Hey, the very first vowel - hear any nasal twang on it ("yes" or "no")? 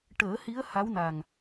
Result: no